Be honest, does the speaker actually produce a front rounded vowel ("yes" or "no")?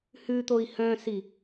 yes